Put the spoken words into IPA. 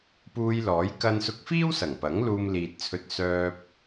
p uː˧ j l ɔː˨˥ j k ɐ˧ n s ʊ˧ k̚ f iː˥ w s ɐ˨˩ ŋ p ɐ˨˥ ŋ l uː˧ m l iː˨ t̚ t͡sʰ ɵ˧ t̚ s œː˧ p̚

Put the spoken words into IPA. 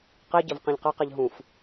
q i ɟ ɘ v q ẽ ʎ q ɛ q ɛ ʎ ɦ ũ f

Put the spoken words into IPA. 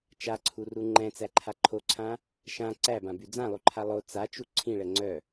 t͡ʃ a ǀʰ u r u ŋ͡ǃ ɛ̃ t͡s æ ǃʰ a ǃʰ o ǀʰ ã | ʃ ã ǀ æ b ã b y d͡z ã lˠ u ǃʰ a lˠ o t͡s a t͡ʃ u ǀʰ ĩ ɭ ɛ ŋ͡ǀ œ

